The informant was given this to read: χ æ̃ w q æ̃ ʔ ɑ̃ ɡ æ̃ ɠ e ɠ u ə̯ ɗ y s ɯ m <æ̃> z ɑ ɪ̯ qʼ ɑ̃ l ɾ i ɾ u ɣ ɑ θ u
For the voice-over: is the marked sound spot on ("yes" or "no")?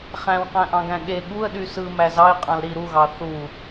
no